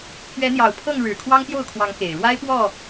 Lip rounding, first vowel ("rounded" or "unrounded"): unrounded